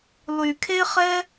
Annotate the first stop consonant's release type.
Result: aspirated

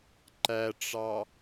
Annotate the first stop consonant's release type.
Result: click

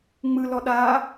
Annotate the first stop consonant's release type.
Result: implosive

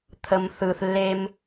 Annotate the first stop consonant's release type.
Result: aspirated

